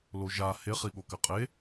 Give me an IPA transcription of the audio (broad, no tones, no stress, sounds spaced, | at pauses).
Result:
l o ʒ a h e χ i ɠ o k ɘ qʼ e